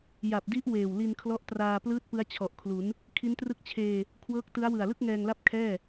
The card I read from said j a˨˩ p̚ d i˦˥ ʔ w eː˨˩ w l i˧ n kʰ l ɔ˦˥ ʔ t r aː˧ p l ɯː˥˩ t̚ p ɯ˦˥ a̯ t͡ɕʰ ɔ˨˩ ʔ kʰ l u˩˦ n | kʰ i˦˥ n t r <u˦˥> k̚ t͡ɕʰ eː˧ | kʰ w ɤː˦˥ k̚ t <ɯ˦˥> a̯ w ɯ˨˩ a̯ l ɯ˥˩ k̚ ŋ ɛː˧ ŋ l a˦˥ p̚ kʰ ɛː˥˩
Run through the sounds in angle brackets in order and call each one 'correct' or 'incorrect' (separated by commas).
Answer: incorrect, correct